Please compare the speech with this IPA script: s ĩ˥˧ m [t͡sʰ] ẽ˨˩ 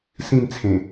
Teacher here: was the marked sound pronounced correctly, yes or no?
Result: yes